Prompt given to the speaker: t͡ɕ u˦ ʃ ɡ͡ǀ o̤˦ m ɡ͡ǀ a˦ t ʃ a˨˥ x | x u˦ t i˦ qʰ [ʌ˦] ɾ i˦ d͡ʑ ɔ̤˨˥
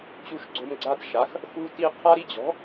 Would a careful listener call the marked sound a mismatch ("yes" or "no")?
yes